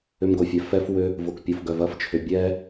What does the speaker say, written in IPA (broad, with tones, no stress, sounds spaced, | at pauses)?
ʏ˧ m ɡ o˨ fʲ ɛ˨ f ɛ˦ f w ʏ˧ | v ʊ˨ k pʲ ʊ˨ f ɡ œ˨ v ɐ˦˨ f t͡ʃʰ ʏ˨ bʲ ɛ˧